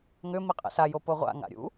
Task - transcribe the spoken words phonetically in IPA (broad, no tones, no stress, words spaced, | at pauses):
ŋʏ miqʼɛ̰sa jopoʁʷa̰ ŋa̰ɾʲṵ